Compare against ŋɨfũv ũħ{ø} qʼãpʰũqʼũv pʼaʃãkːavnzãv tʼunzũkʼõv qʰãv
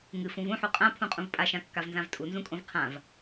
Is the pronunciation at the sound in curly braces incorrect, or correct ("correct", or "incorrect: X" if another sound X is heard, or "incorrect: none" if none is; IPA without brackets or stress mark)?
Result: incorrect: u